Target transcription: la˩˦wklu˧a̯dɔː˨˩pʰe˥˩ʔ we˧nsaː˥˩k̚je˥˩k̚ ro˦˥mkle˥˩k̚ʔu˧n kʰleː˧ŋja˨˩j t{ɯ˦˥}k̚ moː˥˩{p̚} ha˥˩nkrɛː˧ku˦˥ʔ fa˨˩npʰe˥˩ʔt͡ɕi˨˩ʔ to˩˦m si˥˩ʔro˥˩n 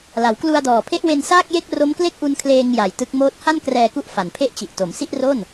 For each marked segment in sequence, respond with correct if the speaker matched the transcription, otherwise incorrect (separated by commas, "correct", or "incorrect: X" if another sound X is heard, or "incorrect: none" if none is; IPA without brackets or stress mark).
correct, incorrect: t̚